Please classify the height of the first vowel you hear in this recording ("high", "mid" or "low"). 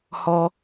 mid